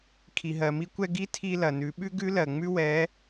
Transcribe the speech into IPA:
kʰ i˩ ɦ ɜ˩ m i˧ kʷ ɛ˧ ɡ i˥ tʰ i˧ l ɐ˩ n ʉ˩˧ ɓ ʉ˥ ɡ ʉ˥ l ɜ˩ ŋ͡m ʉ˥ w ɛ˧˥

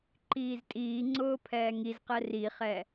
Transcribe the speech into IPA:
ǃ iː z tʼ iː ŋ͡ǀ ʊː pʰ ɛː ŋ i z q ɛ r i χ ɛ

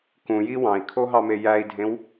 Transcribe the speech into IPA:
k ũ j i w ɑ̃ i̯ kʰ o ɦ ɑ m e j æ i̯ dʱ ẽ w

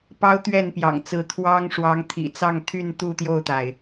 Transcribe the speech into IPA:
p ɑ˦ ʊ̯ t̪ ɥ ɛ˥˨ n p j ɑ̰˨˩ ŋ t͡s ɹ̩˨˦ t̪ʰ w ɑ˦ ŋ ʂ w ɑ˨˦ ŋ t̪ʰ ḭ˨˩ t͡s ɑ˥˨ ŋ t̪ʰ y˥˨ n t̪ u˥˨ t̪ j o˥˨ ʊ̯ t̪ a˩ ɪ̯

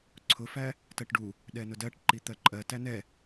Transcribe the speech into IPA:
ǀʰ ʊ f æ | t ɜ ʈ ɖ u | ɗ ɛ n ʊ d ɜ ʈ ǃ i t̪ ɜ ǃʼ ɜ t æ n ɛ

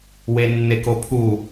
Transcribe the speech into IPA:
w e nː e k o pʰ u

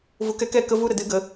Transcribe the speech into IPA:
v u˨ k ɛ˧ k ɛ˧ k ə˦ v u˦ ɾ ə˧ d ɨ˦ ɡ ə˨˦

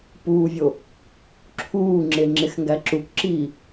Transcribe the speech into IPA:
p uː vʲ o | ǁʰ uː ŋ͡ǁ e ŋ͡ǁ e x ŋ ɡ æ ǁ u k ǁ iː

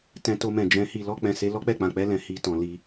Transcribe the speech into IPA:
t ɛ̃˧ t o˧ m ɛ̃˨ d͡ʒ ɛ̃˨˦ h i˧ l ɔ˧ k͡p ɛ̃˧ s e˦ l ɔ˦ k͡p ɛ˦˨ k͡p ã˨ k͡p ɛ˧ l ɛ̃˨ h i˧ t ɔ̃˨ l i˧

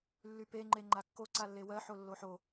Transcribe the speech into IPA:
lː y p e ŋ͡ǃ e ŋ͡ǃ a kː o ǀ a lː e w ɜ ħ o lː o ħ o

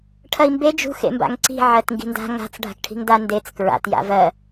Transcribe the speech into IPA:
ʈʰ ɐ i̯ m b e d͡ʒ ṳ x ḛ m b a̰ ŋ ǀ i̤ ʕ ɜ t ŋ ɡ i̤ n d a̤ ŋ a̤ t͡s ɖʱ a̤ k ʈʰ i̤ ŋ d a n d e t͡s k ɹ a̰ t j a̰ v ɜ

